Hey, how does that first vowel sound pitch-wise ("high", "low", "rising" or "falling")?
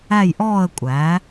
falling